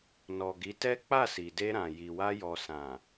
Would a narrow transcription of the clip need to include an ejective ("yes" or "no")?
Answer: no